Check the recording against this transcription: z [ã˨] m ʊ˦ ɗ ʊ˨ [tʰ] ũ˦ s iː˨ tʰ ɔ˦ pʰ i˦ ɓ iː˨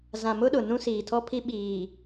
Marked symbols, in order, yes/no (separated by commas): yes, no